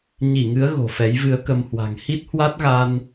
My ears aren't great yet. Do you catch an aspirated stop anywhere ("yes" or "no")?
no